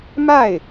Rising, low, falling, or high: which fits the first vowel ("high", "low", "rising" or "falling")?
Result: falling